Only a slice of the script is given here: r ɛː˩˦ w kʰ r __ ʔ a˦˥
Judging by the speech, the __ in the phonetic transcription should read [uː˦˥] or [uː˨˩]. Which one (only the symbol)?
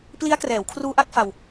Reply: uː˦˥